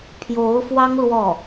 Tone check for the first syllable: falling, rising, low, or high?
rising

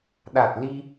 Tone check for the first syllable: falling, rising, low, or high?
low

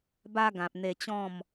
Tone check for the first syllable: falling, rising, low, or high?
high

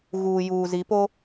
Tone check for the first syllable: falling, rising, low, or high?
low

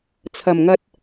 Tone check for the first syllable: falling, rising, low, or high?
low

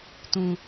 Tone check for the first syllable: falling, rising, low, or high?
low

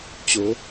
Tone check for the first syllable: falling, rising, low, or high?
rising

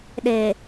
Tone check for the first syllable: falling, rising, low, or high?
low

